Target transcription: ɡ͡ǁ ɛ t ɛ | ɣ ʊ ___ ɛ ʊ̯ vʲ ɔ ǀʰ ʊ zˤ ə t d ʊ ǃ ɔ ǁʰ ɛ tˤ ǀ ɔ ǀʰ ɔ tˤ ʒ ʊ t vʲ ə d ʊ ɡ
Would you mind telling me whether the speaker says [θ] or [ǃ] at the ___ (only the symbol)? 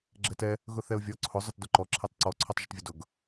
θ